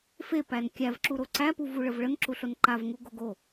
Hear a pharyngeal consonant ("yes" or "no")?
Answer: no